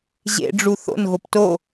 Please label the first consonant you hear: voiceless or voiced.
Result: voiced